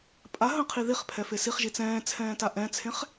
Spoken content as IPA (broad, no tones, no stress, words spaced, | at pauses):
pʼa ɦə̃qʰi ðiχpʰɛfe siχʒi t͡sɛ̃ːt͡sʰɛ̃ːta ʔɛ̃t͡sʰẽχ